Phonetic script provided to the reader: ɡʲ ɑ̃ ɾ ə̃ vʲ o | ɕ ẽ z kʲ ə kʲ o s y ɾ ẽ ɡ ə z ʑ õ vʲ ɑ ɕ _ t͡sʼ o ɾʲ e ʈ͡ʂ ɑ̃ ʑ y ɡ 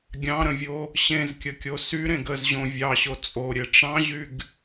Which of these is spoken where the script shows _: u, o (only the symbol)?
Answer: o